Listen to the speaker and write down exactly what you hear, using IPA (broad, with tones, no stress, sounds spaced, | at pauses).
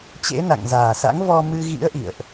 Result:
t͡ɕ ḛ˧˥ n a̰˧˨ ŋ z aː˨˩ s a̰˧˥ ŋ v ɔ˧ m ɨ˧ ɣ ḭ˧˥ ə̯ ʔ ḭ˧˨ ə̯ ʔ